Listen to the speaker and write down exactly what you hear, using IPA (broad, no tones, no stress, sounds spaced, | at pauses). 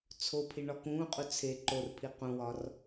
t͡sʰ o pʰ i ɳ ɒ k ũː qʼ u t͡sʰ e ǃ o r pʰ i q ũ w ɒ r